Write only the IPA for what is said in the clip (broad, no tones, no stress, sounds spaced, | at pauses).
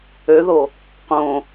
ø ð o | q õ